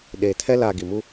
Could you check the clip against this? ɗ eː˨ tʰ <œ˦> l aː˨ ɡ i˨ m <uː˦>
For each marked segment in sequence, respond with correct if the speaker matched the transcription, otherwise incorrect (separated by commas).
incorrect, incorrect